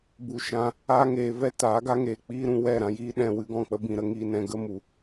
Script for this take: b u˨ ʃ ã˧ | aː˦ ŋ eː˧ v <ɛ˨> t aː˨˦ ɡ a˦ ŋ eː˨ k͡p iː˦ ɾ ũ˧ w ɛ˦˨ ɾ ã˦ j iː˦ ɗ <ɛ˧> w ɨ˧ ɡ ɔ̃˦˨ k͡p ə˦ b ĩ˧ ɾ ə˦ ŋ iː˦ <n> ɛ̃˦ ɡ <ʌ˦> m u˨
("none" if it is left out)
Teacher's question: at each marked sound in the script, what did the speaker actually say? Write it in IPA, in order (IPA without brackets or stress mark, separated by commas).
ɛ˦, ɛ̃˧, n, ə˦